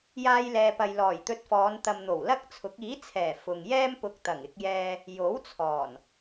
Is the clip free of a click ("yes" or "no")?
yes